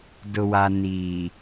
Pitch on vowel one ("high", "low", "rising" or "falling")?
low